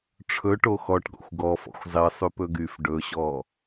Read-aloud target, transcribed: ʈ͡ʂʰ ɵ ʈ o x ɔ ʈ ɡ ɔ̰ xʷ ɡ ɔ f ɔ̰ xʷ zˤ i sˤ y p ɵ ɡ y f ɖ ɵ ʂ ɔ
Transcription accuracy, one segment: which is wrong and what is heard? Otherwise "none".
ʂ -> ɕ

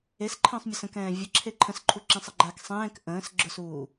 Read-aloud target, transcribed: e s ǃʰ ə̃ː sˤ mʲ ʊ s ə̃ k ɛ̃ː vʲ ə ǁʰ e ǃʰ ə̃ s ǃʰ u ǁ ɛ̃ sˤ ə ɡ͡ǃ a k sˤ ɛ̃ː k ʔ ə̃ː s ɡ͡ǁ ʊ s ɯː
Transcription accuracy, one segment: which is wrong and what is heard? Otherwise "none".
ɯː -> uː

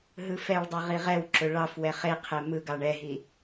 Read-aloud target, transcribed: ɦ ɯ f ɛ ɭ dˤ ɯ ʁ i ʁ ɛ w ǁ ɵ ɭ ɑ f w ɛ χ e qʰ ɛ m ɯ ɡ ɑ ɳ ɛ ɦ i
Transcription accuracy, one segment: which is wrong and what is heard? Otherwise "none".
none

